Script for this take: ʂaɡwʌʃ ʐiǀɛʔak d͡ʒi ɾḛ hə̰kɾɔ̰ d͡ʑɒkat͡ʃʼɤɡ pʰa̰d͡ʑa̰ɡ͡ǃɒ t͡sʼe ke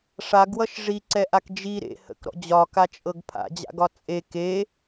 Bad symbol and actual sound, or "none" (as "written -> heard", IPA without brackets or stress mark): ɡ͡ǃ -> ɡ